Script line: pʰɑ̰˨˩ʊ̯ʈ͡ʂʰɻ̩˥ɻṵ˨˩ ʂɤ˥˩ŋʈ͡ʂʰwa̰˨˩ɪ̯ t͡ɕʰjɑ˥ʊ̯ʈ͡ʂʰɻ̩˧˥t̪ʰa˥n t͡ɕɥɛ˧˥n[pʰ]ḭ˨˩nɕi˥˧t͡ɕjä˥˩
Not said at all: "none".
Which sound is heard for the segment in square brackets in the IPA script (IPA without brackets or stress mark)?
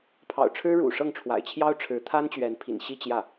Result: pʰ